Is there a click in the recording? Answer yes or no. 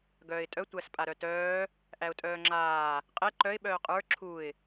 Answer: yes